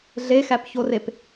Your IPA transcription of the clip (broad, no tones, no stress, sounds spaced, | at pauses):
ɮ e x æ p ç o r e p